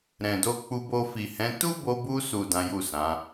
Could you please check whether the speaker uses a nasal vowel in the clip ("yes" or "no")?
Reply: yes